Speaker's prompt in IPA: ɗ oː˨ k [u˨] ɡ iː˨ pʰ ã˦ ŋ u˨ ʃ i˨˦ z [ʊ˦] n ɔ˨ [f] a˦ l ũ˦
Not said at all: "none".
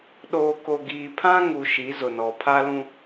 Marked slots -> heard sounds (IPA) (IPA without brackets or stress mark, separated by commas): o˨, ʊ˨, pʰ